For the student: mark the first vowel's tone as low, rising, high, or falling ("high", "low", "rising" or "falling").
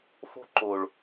high